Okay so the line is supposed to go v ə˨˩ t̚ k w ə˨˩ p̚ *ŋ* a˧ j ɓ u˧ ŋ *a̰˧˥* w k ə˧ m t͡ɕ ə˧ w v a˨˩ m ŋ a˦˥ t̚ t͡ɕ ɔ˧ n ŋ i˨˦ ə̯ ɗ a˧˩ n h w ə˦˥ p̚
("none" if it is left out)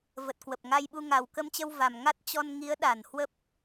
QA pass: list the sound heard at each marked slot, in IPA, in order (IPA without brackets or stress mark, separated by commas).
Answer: ŋ, a˨˩